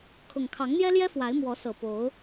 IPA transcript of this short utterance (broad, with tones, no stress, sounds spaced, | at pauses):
kʰ ʊ˨˩ ŋ kʰ ɑ˨˦ ŋ n̪ j ɛ˦ l j ɛ˦ f w a˨˦ ɪ̯ m w ɔ˨˦ s ɤ˨˩ p o˨˦ ʊ̯